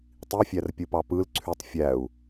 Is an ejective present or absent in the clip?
absent